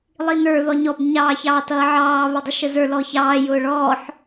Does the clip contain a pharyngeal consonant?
yes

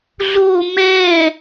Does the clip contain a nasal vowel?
no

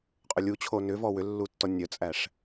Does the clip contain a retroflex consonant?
yes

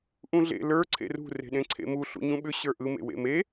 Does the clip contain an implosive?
yes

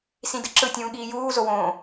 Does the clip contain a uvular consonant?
no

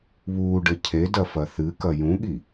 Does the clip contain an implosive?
yes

